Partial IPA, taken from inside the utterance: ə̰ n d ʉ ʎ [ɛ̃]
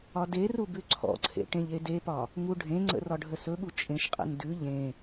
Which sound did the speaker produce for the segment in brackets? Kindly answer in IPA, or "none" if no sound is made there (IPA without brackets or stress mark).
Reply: ẽ